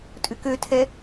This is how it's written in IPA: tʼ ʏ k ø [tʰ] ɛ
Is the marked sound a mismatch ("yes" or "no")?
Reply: no